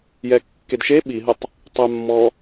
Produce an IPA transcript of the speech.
j ɛ kː e d ʃ e ɓ i ɦ ə tˤ | tˤ œ mː ɔ

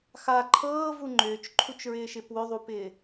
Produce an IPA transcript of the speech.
x a ǃʰ ɤː v u ŋ͡ǃ ʏː t͡ʃ ǃʰ u t͡ʃ ɹ ɪː ʃ ɪ p w ʏ ðˤ u p ɪː

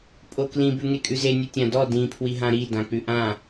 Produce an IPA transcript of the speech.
pʼ o k l ĩ b ʉ ŋ e kʼ ʉ z e nʲ ɯ tʲ ã d ɔ d ĩ pʰ w i ɦ ã ɾ i d ã k͡p ʉ ʔ ã

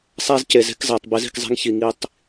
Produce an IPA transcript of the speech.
sˤ æ˦ z c e˨ z e̤˦ k z æ˨ tˤ b i˨˦ z i̤˨ k zˤ e̤˦ ŋ ç i˨ ŋ i˦ tˤ

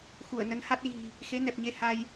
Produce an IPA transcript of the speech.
x u˧˩ ə̯ n ə˨˦ n h a˦˥ t̚ ɣ i̤˨˩ | x e˨˦ n ɛ˨˩ p̚ ɲ e˧ h a˧ j

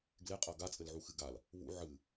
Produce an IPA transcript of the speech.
ɡ l e qʼ ɐ ɡ a t͡sʼ ɘ l ʕ u x ɨ ɡ a l | β ṵ ʕ ɨ

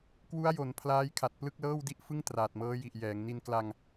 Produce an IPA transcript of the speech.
k w u˦˥ a̯ j o˩˦ n pʰ l aː˦˥ j kʰ a˨˩ t̚ p l ɯ˥˩ k̚ l ɤː˥˩ w d i˥˩ ʔ f ɯ˥˩ ŋ t r aː˨˩ t̚ m ɤː˦˥ j i˨˩ ʔ j ɛː˩˦ ŋ n i˧ n k l a˧ ŋ

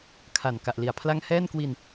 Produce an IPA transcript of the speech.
kʰ a˨˩ n k a˨˩ ʔ l i˨˩ a̯ pʰ l a˥˩ ŋ h ɛː˥˩ n k w i˧ n

